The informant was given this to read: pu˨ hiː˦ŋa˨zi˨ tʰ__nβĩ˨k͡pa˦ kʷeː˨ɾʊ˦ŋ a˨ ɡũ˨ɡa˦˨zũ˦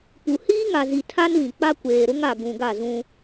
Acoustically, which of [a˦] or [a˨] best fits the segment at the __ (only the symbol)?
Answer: a˦